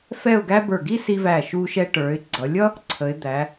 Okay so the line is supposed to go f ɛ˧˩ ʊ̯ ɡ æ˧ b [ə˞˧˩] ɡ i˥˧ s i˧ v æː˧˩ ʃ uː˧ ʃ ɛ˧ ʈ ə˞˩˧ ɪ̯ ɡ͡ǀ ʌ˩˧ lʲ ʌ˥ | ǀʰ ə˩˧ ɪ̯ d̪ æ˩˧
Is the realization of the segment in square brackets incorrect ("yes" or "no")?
no